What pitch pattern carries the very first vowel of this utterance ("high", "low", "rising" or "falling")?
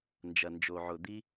low